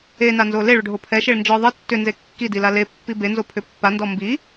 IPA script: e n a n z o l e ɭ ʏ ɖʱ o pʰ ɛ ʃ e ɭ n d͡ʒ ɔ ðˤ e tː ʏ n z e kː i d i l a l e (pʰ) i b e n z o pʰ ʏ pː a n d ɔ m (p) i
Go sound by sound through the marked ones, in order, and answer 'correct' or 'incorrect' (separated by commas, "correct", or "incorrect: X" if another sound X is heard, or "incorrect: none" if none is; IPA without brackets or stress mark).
incorrect: pː, incorrect: b